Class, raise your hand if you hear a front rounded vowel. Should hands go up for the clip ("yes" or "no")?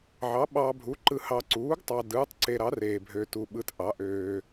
yes